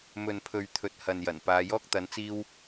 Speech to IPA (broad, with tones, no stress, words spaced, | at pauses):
mɵ˨npʰɵ˨ɥ t̪ʰɵ˨t̚hɐ˨njɐ˨˩n paː˨˧jɔː˥k̚ t̪ɐ˨˥nt͡siː˥w